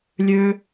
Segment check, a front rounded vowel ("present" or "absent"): present